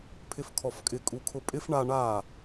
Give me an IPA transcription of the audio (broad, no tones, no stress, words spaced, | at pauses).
pʰɪfkʰɔfkʼɪ kʼukʰʊpʼɪf ɳa ɳa